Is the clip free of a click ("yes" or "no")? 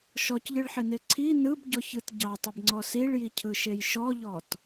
no